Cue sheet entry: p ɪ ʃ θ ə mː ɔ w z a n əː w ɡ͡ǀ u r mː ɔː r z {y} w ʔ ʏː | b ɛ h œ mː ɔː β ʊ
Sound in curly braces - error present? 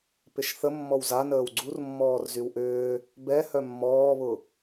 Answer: no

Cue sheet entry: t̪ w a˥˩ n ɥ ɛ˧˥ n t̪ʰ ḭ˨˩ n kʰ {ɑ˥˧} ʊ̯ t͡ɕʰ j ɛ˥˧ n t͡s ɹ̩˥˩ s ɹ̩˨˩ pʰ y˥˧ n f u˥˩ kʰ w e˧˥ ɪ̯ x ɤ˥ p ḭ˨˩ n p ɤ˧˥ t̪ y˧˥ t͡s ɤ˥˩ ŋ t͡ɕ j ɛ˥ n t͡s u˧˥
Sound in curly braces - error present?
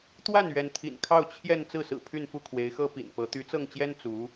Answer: no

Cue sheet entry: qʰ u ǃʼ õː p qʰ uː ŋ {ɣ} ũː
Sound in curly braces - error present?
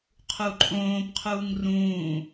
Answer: yes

